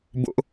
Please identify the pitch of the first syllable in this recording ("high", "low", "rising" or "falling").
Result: high